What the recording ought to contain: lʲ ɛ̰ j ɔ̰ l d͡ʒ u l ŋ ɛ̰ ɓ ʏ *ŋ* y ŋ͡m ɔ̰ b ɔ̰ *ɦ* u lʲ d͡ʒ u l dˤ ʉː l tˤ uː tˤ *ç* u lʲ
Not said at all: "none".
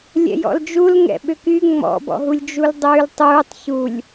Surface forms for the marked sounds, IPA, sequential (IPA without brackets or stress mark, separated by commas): k, ɦ, ç